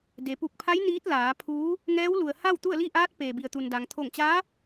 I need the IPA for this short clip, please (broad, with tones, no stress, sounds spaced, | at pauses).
d e˩˧ p u˧˩ k̚ pʰ a˧˥ j n iː˧˥ t̚ l aː˩˧ pʰ uː˧˥ | ŋ ɛː˧˥ w l u˩ ə̯ h a˥˨ w t̪ u˥˨ ə̯ l i˥˨ ʔ aː˧˥ t̚ p eː˩ b i˩ ə̯ t̪ u˩ n d a˩ ŋ t̪ʰ o˧˩ ŋ t͡ɕ aː˧˥